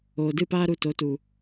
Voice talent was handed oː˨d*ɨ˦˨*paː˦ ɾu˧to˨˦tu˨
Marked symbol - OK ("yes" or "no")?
yes